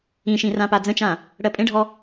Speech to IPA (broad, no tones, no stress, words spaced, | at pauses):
ĩʃĩ rãpad͡zə̃t͡ʃã | ɽɜpʼẽɖʱɔ